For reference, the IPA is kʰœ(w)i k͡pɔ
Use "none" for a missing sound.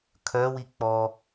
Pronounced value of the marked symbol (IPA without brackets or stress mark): w